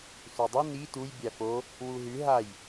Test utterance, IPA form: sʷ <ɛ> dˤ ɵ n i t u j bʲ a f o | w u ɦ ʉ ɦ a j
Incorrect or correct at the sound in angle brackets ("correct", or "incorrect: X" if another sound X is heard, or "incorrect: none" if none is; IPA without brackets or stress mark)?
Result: incorrect: e